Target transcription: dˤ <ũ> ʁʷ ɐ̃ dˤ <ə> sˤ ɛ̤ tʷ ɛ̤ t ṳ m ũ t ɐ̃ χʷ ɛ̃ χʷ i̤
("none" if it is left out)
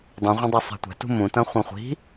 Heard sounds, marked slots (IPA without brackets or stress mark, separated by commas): ũ, ɛ